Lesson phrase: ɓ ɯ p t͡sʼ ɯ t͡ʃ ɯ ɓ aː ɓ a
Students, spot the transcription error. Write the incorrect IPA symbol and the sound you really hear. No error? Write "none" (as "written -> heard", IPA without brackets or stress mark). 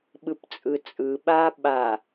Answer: t͡ʃ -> t͡sʼ